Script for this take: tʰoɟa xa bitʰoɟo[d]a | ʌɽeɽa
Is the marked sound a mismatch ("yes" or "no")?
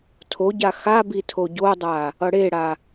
yes